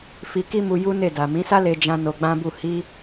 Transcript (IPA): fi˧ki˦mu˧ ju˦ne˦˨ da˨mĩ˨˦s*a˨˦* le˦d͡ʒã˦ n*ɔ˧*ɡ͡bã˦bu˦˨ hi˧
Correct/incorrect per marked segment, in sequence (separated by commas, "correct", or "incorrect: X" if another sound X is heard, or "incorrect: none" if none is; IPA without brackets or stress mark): incorrect: a˦, incorrect: o˧